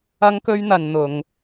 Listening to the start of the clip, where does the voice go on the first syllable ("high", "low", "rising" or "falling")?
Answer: high